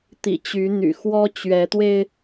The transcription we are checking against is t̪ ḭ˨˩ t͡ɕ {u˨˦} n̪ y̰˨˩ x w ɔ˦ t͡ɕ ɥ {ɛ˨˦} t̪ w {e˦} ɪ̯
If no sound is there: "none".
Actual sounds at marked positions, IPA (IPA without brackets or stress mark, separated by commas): y˨˦, ɛ˨˦, e˧